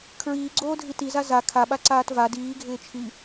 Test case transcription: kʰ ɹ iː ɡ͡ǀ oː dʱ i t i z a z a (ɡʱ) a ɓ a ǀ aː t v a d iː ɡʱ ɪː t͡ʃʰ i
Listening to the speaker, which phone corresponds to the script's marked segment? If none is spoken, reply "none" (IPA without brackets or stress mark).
kʰ